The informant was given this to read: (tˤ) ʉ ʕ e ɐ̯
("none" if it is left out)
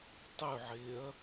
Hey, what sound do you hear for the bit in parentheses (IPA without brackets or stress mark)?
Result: tˤ